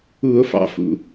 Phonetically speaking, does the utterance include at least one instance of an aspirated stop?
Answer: no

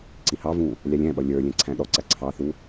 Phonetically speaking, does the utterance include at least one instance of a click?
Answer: yes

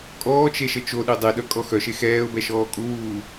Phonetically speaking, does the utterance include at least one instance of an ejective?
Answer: yes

